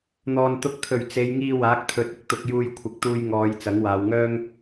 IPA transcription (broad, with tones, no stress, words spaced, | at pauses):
n̪ɔː˨n t̪ʊ˨k̚t̪ʰɵ˨˩ɥ t͡se˨˧jŋiː˧ waː˨˥k̚t̪ʰɵ˨˥t̚ɪ˨k̚ t̪ʊ˧k̚juː˧j kʷʰɪ˨˥k̚t̪uː˧j ŋɔː˨˧j t͡sɐ˨˥ŋwaː˨˧wŋœː˥ŋ